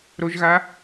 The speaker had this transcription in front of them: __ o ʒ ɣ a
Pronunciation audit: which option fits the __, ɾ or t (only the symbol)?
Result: ɾ